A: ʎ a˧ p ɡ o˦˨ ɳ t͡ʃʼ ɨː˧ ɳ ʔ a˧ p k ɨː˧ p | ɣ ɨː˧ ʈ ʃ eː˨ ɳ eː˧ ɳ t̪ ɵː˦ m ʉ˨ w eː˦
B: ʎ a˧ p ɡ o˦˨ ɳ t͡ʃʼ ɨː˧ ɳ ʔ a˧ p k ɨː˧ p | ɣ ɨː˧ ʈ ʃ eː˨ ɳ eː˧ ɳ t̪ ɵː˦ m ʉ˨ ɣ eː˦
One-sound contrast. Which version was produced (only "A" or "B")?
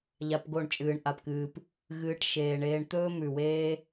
A